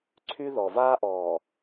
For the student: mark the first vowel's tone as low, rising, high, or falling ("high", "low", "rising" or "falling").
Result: high